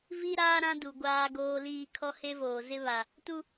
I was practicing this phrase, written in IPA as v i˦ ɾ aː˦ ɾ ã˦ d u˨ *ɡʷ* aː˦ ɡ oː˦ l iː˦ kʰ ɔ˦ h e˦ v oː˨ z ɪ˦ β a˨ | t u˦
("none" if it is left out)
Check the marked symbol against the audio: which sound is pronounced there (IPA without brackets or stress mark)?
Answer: ɡʷ